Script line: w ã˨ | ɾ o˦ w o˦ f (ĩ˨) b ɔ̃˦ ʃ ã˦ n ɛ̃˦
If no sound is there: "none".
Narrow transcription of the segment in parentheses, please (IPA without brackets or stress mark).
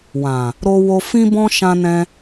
ĩ˦